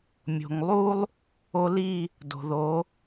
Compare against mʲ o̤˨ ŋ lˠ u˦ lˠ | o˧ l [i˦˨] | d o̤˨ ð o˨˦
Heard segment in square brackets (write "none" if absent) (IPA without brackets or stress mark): i˦˨